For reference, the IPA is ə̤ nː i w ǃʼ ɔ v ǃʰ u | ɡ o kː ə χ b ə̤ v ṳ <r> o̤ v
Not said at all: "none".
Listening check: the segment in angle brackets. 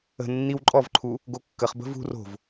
r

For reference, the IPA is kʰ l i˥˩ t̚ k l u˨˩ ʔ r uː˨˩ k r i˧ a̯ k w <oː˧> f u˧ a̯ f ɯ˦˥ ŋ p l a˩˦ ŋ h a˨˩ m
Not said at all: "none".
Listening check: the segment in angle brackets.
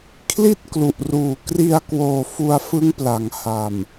oː˨˩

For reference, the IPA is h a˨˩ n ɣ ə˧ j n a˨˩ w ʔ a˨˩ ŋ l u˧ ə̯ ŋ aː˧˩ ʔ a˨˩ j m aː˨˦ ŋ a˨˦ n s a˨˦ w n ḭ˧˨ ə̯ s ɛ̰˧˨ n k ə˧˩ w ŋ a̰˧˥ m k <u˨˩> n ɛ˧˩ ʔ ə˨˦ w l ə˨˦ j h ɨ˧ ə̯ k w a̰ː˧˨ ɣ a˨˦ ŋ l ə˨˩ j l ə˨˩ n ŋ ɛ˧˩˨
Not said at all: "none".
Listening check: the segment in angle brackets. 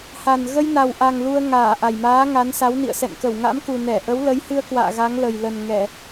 u˨˩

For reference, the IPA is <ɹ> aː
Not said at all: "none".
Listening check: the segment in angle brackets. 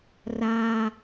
r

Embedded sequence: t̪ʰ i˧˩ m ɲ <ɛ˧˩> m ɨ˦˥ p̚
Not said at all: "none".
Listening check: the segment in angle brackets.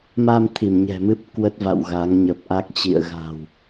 ɛ̤˨˩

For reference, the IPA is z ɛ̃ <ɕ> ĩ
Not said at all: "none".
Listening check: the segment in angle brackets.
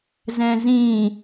z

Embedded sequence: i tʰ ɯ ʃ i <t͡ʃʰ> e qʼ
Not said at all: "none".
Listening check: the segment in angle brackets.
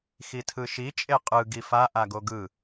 t͡ʃʼ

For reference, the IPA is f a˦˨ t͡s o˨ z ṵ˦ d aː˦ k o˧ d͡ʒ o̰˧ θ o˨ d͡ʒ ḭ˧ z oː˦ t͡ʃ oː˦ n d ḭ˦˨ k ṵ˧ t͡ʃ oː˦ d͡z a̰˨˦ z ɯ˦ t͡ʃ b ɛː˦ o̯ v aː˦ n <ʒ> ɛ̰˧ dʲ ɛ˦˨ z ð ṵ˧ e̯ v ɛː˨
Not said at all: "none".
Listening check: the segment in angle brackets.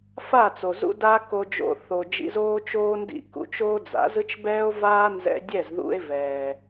z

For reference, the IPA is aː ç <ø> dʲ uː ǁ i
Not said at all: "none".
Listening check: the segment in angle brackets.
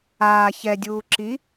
ɛ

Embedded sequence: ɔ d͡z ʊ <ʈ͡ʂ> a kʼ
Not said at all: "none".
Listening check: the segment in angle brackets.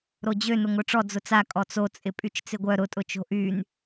t͡s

